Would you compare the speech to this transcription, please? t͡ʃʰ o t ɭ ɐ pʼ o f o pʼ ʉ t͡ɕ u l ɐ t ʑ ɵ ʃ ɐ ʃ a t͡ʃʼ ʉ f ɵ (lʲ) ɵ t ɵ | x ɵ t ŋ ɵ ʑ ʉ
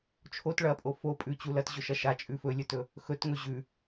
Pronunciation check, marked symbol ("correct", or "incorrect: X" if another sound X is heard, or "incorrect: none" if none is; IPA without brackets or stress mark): correct